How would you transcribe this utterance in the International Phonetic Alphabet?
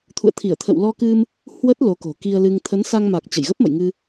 t̪ʰ ṵ˧˨ ə̯ t̪ʰ i˧˩ ə̯ t̪ʰ ə̰˧˨ w l ɔ˧ k ɨ˧ m | h w ə˦˥ t̚ l o˨˦ k o̤˨˩ k i˧ ə̯ l ɨ˧ ŋ t̪ʰ ə˨˦ n s a˧ ŋ m a˨˩ k̚ t͡ɕ ə˧˩ j ɣ ə˦˥ p̚ m ə̰˧˨ j ŋ ɨ˧

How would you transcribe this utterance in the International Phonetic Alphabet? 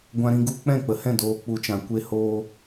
ɡʷ ã˧ ɾ ĩ˧ ɡ u˧ k͡p ɛ̃˦˨ k͡p ə˨ h ɛ̃˦˨ d oː˧ k͡p u˧ t͡ʃ ã˨ kʷ e˧ h oː˧

